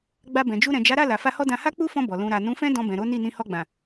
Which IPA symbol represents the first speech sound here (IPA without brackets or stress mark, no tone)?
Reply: ɡ͡b